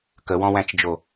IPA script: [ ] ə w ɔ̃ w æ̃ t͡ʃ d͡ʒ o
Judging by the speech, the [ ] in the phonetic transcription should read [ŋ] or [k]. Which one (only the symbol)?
k